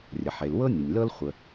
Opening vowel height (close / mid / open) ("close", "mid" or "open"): mid